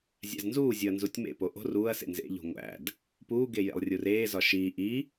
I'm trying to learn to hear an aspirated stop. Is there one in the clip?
no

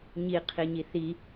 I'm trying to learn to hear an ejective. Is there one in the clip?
no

